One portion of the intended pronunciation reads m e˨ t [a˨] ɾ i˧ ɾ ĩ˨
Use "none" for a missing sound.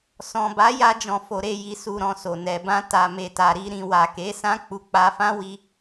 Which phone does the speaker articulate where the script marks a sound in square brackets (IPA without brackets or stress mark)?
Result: a˨